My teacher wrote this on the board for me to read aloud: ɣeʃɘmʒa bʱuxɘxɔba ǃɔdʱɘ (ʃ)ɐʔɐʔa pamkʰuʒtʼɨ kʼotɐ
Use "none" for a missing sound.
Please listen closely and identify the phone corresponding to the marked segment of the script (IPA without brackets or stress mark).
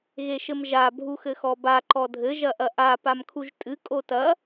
ʒ